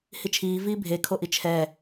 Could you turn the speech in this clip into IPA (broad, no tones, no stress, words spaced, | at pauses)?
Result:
hit͡ʃʰiː viːbʱe kʰoʔit͡ʃʰɛ